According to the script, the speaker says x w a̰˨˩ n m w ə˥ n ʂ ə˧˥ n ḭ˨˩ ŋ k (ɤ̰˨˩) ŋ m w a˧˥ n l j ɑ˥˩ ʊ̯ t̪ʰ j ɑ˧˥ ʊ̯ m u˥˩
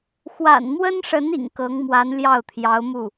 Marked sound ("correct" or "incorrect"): incorrect